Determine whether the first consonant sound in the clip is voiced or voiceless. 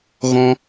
voiced